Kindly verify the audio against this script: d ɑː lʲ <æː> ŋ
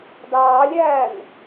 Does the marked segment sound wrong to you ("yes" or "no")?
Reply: no